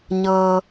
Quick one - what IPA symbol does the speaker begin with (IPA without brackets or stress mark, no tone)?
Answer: ɲ